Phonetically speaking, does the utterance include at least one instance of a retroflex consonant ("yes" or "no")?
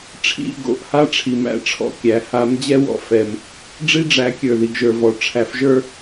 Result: yes